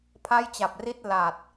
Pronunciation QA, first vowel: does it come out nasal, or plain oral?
oral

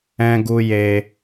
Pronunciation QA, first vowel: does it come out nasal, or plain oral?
nasal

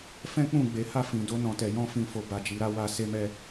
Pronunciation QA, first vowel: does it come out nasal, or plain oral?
nasal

